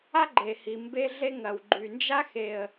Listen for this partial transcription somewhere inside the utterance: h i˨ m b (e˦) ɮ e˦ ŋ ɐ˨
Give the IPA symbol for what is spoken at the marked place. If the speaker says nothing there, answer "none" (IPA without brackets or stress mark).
e˦